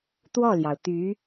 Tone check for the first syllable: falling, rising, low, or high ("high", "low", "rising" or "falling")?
falling